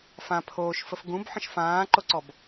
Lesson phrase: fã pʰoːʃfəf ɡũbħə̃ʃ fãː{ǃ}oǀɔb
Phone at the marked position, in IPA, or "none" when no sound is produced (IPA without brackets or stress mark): ǃ